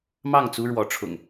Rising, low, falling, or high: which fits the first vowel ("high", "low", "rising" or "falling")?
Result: falling